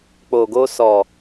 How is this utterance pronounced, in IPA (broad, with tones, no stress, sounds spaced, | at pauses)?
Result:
k͡p o˨ ɡ o˧ s ɔ˨